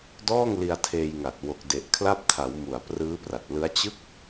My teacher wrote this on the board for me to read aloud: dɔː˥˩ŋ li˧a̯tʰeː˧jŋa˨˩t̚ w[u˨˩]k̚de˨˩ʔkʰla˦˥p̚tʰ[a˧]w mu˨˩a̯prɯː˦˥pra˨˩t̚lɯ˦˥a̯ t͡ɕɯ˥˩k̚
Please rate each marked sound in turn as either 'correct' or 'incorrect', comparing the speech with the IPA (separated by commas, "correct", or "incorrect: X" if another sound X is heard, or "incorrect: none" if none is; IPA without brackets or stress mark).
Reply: incorrect: o˨˩, incorrect: a˩˦